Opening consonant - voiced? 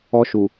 no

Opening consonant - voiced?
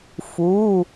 no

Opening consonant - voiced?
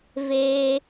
yes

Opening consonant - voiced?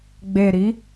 yes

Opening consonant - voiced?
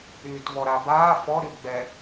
no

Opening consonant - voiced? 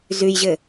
yes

